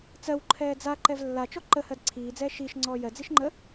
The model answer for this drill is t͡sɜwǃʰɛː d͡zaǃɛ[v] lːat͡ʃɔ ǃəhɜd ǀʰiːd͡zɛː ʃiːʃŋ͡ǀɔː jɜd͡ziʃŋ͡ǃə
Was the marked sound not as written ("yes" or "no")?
no